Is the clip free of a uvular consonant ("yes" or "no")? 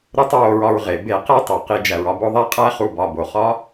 no